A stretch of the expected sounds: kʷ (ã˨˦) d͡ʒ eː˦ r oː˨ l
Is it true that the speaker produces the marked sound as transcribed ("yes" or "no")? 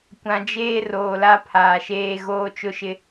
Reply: no